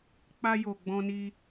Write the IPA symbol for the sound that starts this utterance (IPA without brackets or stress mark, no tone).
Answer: k͡p